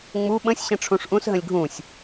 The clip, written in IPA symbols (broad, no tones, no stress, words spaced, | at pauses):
ŋ͡mu ɓə̃sʲ ɕə̃ʈ͡ʂʰũʂʔũs ɦə̃lʲɡʱũsʲ